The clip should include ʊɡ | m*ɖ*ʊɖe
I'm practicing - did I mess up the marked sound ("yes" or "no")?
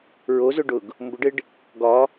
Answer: yes